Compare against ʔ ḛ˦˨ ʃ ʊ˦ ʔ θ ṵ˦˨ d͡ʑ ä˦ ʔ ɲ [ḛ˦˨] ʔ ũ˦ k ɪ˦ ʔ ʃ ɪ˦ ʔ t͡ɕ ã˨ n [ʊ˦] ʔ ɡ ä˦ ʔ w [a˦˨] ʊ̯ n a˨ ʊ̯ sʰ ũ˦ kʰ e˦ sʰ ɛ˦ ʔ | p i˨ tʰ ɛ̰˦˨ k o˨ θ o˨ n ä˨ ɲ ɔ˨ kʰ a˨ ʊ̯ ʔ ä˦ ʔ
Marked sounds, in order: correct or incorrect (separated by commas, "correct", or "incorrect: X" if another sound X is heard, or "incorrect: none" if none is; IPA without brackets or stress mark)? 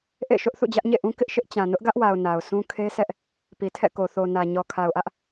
correct, correct, incorrect: a˨